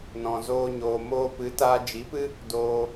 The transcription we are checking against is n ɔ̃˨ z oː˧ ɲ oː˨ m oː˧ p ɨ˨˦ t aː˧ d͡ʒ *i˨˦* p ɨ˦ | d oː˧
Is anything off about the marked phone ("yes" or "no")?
no